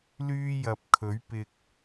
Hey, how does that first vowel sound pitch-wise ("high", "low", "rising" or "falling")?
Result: high